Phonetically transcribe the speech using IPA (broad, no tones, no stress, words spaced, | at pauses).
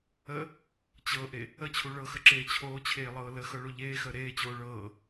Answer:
ə | t͡ɕɤʔe | ət͡ɕʰu ɭɤxəǁeː t͡ɕʰoːt͡ɕʰeːlˠɤː ləxɤɭo ʎeːxəː ɾeːt͡ɕoː ɭɤː